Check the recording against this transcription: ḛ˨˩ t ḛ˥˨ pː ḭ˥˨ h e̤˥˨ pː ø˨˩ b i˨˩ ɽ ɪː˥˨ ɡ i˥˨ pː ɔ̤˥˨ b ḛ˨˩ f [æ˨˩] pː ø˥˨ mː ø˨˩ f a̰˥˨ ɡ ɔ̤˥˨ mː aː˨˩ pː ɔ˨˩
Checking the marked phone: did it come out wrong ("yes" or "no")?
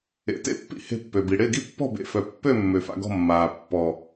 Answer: yes